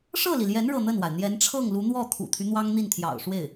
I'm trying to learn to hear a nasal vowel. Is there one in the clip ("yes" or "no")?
no